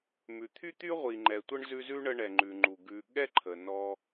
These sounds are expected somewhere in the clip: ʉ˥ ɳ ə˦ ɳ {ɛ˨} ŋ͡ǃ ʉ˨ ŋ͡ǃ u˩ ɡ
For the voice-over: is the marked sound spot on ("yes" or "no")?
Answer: yes